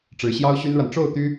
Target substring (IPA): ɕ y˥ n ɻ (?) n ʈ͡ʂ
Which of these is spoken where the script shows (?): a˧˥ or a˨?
a˨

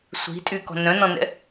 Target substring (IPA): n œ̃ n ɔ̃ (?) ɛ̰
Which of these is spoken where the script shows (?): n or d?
n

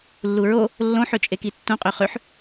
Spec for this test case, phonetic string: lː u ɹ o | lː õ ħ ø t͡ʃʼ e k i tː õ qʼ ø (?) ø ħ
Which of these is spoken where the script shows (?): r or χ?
χ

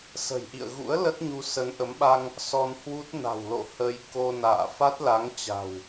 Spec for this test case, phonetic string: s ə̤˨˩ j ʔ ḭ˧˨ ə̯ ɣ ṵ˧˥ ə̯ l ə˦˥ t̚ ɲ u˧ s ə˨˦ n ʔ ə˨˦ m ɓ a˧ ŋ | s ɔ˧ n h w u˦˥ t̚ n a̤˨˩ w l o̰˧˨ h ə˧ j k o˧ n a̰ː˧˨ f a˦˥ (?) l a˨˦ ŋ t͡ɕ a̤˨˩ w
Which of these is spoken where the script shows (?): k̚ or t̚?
t̚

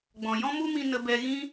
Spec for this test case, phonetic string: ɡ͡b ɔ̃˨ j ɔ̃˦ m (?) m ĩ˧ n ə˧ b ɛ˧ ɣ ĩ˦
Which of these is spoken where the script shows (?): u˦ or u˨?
u˦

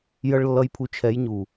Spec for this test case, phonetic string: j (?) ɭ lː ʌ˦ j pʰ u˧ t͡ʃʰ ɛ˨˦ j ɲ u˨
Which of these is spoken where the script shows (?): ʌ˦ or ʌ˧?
ʌ˦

